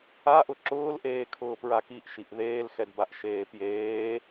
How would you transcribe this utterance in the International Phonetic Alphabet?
a ʔ ʊ ǁ ʊː l ʔ eː kʰ ʊː p ɹ a k i ʔ ʃ i ʔ ð eː l x ɛ d b a ʔ ʃ eː p j eː

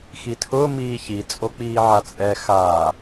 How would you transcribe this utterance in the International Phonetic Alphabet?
x i tʰ ʊː m iː ç i t͡sʼ o k͡p iː ʕ a t͡sʼ ɛ x a

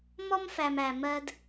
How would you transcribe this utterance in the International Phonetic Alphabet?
m ɔ˦ m f æ˨ m æ˨ m ɜ˦ d

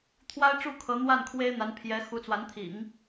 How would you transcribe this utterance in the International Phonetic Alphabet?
t̪ʰ w a˥ ɪ̯ ʈ͡ʂ u˥˩ kʰ ɤ˧˥ n̪ w a˥˩ n kʰ w e˥ ɪ̯ n̪ a˧˥ n pʰ j ɛ˧˥ x u˧˥ t͡s w a˧˥ n t̪ʰ ḭ˨˩˦ ŋ

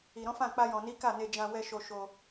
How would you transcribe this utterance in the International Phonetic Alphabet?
i˨ ɾ ɔ̃˨˦ f ã˦˨ k͡p a˧ j ɔ̃˨ n i˨˦ k a˦˨ n e˧ d͡ʒ ã˧ w ɛ˧ ʃ o˧ ʃ o˧

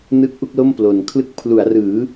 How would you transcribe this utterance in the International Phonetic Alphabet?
n ɯ˦˥ k̚ ʔ u˦˥ k̚ l o˥˩ m p l o˨˩ n kʰ l ɯ˥˩ k̚ pʰ l u˩˦ a̯ r ɯː˩˦

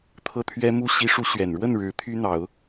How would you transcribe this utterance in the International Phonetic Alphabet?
t̪ʰ ɤ˥˩ t̪ʰ ɥ ɛ˥ m u˥ ɕ i˧˥ ʂ u˧˥ ɕ ɥ ɛ˨˩ n ɻ w ə˥˩ n ɻ ɻ̩˧˥ t̪ʰ y˥ n̪ ɑ˨˩˦ ʊ̯

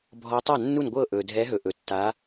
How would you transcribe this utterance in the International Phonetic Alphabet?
bʱ ɔ˨˦ tˤ a˥˩ nː u˥˩ n ɡʷ ɤ˥˩ ʔ ɵ˩ dʱ ɛ˨˦ ɦ ɵ˩ ʔ ɵ˩ tː a˨˦

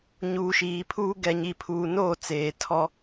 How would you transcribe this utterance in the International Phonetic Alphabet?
ɲ uː˨ ʃ iː˨ pʰ uː˦ ɡ ɛ˨ ɲ i˨ pʰ uː˨ n oː˦˨ t͡s eː˨ tʰ ɔ˦

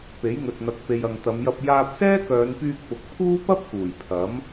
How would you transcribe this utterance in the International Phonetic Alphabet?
p e˨˥ j ŋ ɵ˨ t̚ n̪ ɐ˨˥ k̚ p e˨ j ɐ˨ ŋ t̪ ɐ˨˧ m j ɐ˧ p̚ j aː˧ p̚ s ɛː˥ k œː˨˧ n p yː˧ k̚ p ʊ˨ k̚ pʰ uː˥ p ɐ˥ p̚ k uː˨˩ j pʰ ɐ˨˥ m

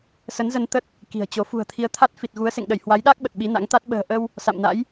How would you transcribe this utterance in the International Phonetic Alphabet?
s ə˨˦ n z ə˧ n t̪ ə˦˥ t̚ | k i̤˨˩ ə̯ t͡ɕ o˨˦ f ṳ˨˩ ə̯ t̪ʰ i˨˦ ə̯ t̪ʰ a˦˥ t̚ f i˨˩ t̚ ɣ u˨˦ ə̯ s ḛ˧˨ ŋ ɗ ə˧˩ j h w a˨˦ j ɗ a˦˥ k̚ ɓ ə˨˩ t̚ ɓ i˨˦ n a̰˧˥ ŋ t̪ a˦˥ t̚ ɓ ə̤ː˨˩ ʔ ə˧ w | s a̰˧˨ m n a̰˧˥ j

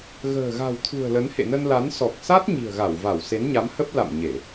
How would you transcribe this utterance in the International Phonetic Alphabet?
ɣ ə̤ː˨˩ ɣ a̤˨˩ w t̪ʰ ṳ˨˩ ə̯ l ə˨˦ n h ḛ˧˨ n ə˧ n l a˨˦ n s ɔ˨˩ k̚ s a˦˥ t̚ ɲ i̤˨˩ ə̯ ɣ a˧˩ w v a˧˩ w s e˨˦ n ɲ a˨˦ m h ə˦˥ p̚ l a̰˧˨ m ɲ e˧˩˨

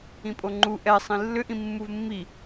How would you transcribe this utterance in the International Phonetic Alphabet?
ĩ pʼ o ŋ͡ǃ u ʔ ɛ sˤ ĩ lː ʏ ʔ ĩ mː u v mː i

